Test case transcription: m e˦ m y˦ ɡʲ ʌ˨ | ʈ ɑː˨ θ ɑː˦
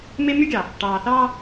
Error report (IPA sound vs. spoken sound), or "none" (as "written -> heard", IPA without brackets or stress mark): ʌ˨ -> ɑ˨